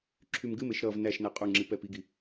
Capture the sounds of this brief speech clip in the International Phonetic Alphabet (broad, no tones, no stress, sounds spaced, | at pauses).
ǁʰ y m ɡ ɨ m e ʃ ɾ ʌ v n æ ʃ n æ qʼ u ŋ͡ǁ i p ɛ p i ɡ i